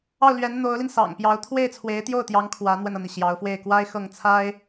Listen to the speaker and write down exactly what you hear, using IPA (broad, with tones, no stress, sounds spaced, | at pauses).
ɑ˥˩ ʊ̯ l ɥ ɛ˧˥ n n̪ o˧˥ ʊ̯ l i˧ n s ɑ̰˨˩ ŋ p j ɑ˧˥ ʊ̯ t̪ʰ w e˥˩ ɪ̯ t͡sʰ w e˧˥ ɪ̯ t̪ j o˥˩ ʊ̯ t̪ j ɑ˧˥ ŋ kʰ w ä˧˥ n̪ w ə˧ n ɤ˩ n̪ i˩ ɕ j ɑ˧˥ ʊ̯ f w e˥˩ ɪ̯ k w a˥ ɪ̯ x ɤ˥˩ ŋ t͡sʰ a˥ ɪ̯